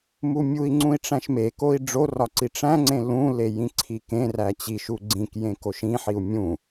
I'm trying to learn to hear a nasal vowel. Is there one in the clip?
yes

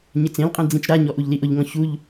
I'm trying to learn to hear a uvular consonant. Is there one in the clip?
yes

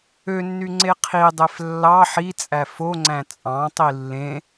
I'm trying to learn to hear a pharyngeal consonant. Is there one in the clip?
yes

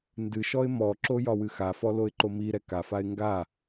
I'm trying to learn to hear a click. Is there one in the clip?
yes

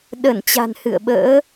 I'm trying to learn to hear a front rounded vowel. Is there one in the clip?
no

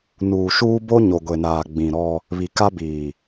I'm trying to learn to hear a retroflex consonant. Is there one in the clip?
no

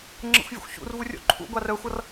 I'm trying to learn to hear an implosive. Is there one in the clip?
no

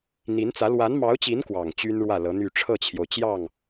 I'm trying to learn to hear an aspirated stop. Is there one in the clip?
yes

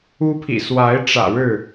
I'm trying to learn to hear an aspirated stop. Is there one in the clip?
yes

